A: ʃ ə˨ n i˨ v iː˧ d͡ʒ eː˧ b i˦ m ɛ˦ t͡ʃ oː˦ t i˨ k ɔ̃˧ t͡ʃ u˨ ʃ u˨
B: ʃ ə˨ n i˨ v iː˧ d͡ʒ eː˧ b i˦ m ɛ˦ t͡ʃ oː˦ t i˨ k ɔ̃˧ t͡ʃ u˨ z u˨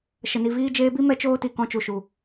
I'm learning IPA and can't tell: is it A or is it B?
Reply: A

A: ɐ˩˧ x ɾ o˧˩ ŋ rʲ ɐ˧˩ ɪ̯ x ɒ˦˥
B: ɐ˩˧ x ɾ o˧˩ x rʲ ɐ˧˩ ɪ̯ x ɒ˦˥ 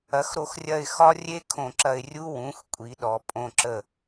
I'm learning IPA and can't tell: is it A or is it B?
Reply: B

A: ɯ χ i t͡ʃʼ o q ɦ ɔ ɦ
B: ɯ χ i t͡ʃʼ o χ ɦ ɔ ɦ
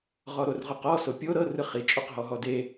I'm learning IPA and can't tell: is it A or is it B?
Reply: A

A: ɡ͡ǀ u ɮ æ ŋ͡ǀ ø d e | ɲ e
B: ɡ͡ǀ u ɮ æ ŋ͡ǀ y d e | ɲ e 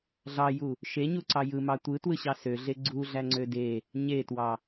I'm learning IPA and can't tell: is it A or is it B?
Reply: A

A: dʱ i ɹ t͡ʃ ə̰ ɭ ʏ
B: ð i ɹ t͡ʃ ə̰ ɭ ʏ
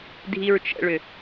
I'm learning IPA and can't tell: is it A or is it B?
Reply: A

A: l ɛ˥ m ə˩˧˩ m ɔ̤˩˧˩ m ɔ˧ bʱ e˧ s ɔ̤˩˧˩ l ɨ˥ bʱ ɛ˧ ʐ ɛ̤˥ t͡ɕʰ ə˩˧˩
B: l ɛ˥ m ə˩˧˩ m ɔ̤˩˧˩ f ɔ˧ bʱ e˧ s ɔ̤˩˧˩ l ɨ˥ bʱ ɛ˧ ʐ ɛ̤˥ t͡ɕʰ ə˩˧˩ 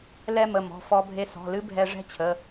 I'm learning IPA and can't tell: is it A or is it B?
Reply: B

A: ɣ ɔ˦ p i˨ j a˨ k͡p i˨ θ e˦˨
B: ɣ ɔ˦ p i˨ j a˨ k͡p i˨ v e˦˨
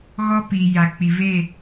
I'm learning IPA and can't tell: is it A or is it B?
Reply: B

